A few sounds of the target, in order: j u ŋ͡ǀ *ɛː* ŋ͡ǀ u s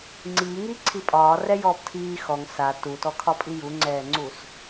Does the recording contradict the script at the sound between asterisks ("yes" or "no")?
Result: no